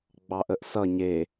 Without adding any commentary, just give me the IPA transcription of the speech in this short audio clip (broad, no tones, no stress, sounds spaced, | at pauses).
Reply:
ɡ͡b ɑ ʔ ə ʔ s ʌ ɲ e